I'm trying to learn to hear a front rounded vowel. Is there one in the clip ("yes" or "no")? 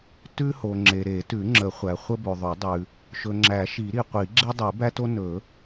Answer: no